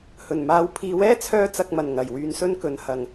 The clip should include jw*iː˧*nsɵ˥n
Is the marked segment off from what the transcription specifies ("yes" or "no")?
yes